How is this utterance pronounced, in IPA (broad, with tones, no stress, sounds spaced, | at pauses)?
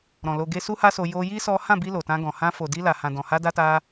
ɾ ɔ̃˨ l o˧ ɡ e˦ s u˦ h a˦ s o˧ j o˧ j i˦ s ɔ˦ h ã˦˨ b i˧ l o˨ t ã˧ ɡ ɔ̃˨ h ã˧ f o˨ d i˧ l a˨ h ã˨ d ɔ̃˨ h a˧ d a˧ t a˧